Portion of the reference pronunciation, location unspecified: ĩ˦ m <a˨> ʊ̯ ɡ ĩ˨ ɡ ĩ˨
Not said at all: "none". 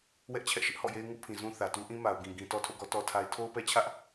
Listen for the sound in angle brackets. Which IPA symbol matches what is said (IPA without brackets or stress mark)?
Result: a˨